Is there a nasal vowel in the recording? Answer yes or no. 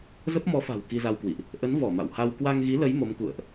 no